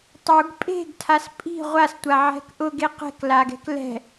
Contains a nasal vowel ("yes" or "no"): no